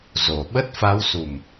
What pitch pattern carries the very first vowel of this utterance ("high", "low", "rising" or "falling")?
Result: low